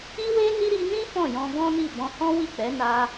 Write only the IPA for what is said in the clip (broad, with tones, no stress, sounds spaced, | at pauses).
i˦ w e˦ n i˦ ɾ i˧ n ĩ˦ f ɔ̃˦˨ j ɔ̃˧ ɡ ɔ̃˦ n i˦˨ b ɔ̃˧ h ɔ̃˦ w i˦˨ k͡p ɛ˨˦ n a˧